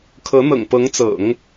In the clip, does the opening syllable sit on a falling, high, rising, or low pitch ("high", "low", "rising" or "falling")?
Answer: rising